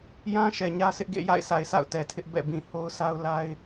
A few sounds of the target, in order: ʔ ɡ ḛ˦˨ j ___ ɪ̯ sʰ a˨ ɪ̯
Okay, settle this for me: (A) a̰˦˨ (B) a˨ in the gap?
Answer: A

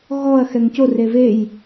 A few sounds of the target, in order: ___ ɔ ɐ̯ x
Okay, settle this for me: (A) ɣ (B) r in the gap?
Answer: A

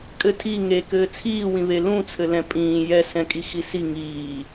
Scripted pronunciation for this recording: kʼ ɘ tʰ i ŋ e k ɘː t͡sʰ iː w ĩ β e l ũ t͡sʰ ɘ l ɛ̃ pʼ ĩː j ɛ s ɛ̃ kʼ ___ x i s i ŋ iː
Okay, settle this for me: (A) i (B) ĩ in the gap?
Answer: A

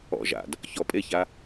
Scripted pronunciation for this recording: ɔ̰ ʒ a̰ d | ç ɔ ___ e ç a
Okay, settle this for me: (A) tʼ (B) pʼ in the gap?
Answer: B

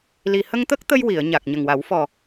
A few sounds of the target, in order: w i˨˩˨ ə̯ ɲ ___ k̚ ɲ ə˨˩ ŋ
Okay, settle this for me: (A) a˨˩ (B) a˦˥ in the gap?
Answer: A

